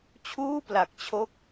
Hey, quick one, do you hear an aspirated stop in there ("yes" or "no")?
yes